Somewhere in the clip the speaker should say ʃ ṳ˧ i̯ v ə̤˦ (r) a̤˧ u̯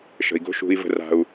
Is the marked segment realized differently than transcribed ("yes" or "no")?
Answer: no